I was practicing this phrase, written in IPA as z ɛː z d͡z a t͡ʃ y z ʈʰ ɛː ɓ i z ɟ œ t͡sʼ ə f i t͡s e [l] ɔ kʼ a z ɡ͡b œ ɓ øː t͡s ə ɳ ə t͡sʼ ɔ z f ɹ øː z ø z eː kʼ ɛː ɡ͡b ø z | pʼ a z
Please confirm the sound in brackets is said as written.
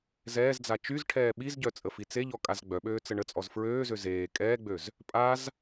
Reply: no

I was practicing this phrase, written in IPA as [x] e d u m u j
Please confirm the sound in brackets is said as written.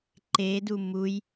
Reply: no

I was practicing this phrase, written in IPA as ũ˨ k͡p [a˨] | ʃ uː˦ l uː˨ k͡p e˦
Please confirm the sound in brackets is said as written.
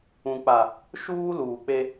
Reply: yes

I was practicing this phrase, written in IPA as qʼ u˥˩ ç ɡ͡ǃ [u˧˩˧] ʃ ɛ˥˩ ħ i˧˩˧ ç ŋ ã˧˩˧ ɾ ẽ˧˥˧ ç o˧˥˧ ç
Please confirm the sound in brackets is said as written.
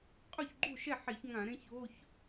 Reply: no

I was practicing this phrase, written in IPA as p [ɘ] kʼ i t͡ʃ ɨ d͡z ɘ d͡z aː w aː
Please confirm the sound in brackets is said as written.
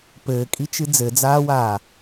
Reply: no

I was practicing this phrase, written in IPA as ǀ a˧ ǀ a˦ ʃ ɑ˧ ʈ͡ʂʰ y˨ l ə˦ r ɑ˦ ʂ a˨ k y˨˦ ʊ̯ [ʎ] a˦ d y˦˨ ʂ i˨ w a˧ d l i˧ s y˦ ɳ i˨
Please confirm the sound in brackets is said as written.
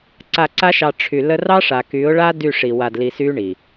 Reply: no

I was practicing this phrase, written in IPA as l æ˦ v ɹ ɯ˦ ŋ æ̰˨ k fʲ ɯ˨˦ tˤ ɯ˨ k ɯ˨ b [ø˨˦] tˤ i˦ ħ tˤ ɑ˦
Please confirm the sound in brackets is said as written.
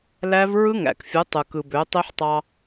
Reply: yes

